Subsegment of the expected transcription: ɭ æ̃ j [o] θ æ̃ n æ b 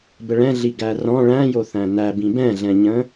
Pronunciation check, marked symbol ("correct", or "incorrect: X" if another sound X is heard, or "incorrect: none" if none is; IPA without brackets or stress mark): correct